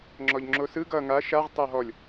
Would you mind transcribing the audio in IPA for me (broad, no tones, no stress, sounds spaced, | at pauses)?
ŋ͡ǁ ɔ ʎ ŋ͡ǁ o s ɯ ɡ ʌ ŋ a ʃ a ʁ tˤ ʌ ɦ ɔ lʲ